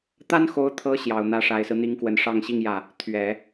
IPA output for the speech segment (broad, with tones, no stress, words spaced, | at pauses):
t̪a˥nxo˧˥ʊ̯t̪ʰɤ˧˥ ɕjɑ˨˩ʊ̯n̪ä˧˥ ʂa˨˩ɪ̯sɹ̩˦n̪i˧˥ŋkwə˨˩n ʂɑ˥˧ŋɕi˥˧ŋjä˥˩ | t̪ʰɥɛ˨˩˦